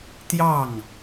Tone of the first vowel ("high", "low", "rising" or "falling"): falling